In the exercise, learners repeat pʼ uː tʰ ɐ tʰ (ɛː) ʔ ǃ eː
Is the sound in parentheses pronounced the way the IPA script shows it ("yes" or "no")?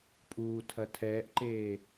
yes